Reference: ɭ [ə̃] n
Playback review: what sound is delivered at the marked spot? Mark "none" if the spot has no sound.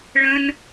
ə̃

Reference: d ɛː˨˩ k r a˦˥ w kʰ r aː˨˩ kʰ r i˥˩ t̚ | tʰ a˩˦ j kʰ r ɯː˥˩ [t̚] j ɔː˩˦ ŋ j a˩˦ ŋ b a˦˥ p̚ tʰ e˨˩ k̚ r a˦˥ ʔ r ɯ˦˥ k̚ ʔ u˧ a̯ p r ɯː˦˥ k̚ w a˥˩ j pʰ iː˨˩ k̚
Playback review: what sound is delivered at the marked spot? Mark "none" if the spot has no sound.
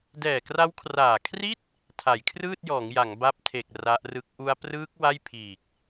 t̚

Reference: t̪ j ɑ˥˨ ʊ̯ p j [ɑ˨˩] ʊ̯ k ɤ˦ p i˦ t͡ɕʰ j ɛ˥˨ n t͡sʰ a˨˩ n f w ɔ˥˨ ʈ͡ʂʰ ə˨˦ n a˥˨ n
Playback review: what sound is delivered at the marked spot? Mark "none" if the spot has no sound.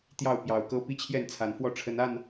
ɑ˨˩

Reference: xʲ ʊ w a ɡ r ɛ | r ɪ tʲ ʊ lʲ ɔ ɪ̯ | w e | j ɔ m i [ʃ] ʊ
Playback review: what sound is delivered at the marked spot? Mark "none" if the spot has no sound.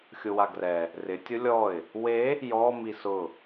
s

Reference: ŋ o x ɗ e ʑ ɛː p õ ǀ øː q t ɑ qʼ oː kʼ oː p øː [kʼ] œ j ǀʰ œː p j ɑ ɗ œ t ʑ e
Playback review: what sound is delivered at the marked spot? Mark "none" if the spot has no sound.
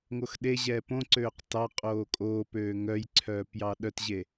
ŋ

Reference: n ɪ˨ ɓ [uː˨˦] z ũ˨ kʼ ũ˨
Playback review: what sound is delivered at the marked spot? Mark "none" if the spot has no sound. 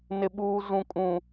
uː˨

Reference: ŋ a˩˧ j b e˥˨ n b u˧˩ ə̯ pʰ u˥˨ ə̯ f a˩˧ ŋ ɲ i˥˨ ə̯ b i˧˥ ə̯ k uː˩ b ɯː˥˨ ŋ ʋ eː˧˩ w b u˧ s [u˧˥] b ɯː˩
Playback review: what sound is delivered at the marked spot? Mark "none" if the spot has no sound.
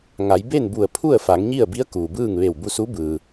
u˧˥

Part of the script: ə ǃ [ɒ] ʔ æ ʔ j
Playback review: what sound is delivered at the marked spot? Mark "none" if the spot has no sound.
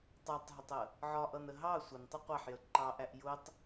ɑ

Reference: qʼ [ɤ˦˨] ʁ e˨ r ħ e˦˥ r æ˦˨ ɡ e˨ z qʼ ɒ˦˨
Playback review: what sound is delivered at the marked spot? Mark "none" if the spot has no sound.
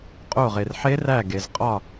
o˦˨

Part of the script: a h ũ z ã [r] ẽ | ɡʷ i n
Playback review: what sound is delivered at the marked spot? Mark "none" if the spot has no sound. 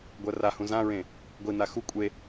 ɹ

